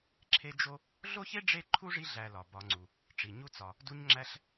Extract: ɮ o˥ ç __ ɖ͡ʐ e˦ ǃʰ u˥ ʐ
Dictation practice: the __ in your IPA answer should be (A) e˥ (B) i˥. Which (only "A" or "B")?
A